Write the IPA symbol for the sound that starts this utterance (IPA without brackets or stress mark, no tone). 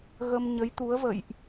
ɣ